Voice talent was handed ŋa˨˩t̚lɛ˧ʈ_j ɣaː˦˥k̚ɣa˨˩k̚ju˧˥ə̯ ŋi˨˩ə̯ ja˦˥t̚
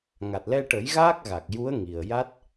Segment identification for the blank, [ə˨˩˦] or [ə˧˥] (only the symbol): ə˨˩˦